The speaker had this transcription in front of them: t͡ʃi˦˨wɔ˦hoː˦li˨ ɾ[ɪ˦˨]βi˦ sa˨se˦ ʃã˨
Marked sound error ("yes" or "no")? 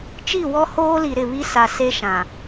no